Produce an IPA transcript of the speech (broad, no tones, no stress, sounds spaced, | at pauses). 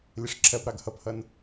lʲ ə ʂ ǁʰ ɜ p ɾ ɑ ɡ h ʌ p h ʌ n